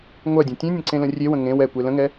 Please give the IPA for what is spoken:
ŋʷɜdʲɛ̃ tʲẽnʲə̃ǀẽlə̃ rʲewə̃ ŋẽw ɛkʷe lə̃ŋɛ

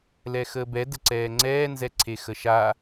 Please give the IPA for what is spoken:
lɛxəːbɛ dəǀɛːŋ͡ǀɛː nzɛǀʰexəʃa

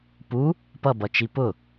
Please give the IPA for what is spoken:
pu | pʌbʌt͡ʃi pʊ

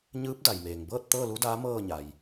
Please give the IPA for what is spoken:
ɲɯː˧˥p̚ da˩jmeː˩ŋbɤː˥˨t̚ t̪ɤː˥˨lu˧˥daː˧˥ mɤː˥˨ɲa˩j

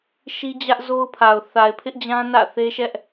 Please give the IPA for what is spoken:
ʃi˦d͡ʑä˦ʔzo˦ʊ̯pʰa˨ʊ̯ θa˨ɪ̯pʰɪ˦ʔd͡ʑã˦ nä̰˦˨ θe˦ʃɛ˦ʔ

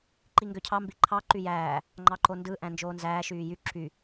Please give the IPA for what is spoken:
ǃiŋɡøcʰɑ mbiǃʰɑ ǃyjæː | ŋ͡ǃɑǃondɯ ʔæ̃nd͡ʒoːnzæː ʃyːjy ǁy

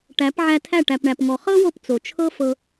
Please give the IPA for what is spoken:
ʈæ˨˦pʕæ˧tʰæ˦˨ ʈæ˨pɳæ˨pŋɔ˨ χɤ˦wo˧p t͡so˨t͡ʃʰɤ˦fɤ˧

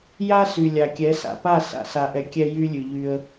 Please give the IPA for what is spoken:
ja˦sy˨ lʲa˨kʲɛ˨˦sa̰˨pa˦˨ sa̰˨sa˨ʔɛ˨ kʲɛ˦jy˦lʲʉ˨ʎy˦ə̯

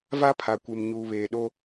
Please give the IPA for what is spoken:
va˦pʰa˨kʷe˨m ɲuː˨βeː˨ ɗo˦

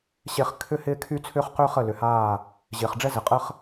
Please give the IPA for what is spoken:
ɕe˦χ kʰʏ˦ hɪː˦kʰy˦t͡sʰʏː˦χqʏː˦ χə˦˨lʏ˨haː˦˨ | ʑɪː˨χɖ͡ʐɛ˦zɪ˨qʼə˦χ

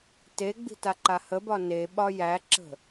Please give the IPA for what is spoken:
teɡ͡bi̤ taǃahəbɒ neɓɒ jæǁə̤

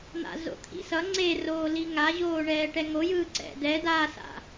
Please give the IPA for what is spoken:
n̪a̰zo̰t̪ʰḭsʌ ŋ͡ǀeroːli ŋaʑoːɳɛː ʈɛŋojɯː ǀɛ̰dɛ dasa̰

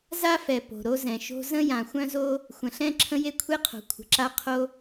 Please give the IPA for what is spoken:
za˥fɛ˨ po̤˨ɾo˥zɛ̃˨ʃo̤˥ zə̃˥ jã˨ xʷœ̃˥zo˥ | xʷə̃˨ɬɛ̃˥ ǁʰə̃˥je˥kʷʰe˥qʰo̤˨ kʷʰə̤˨ǁa˥qʰo˥

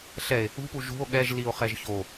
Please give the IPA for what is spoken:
ɬɛe̯ | ṳpu ʒṳo̯ ɠɛʒ lio̯χɛʒço

